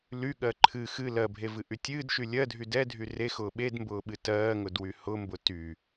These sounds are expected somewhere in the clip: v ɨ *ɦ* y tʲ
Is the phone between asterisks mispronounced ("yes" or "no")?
yes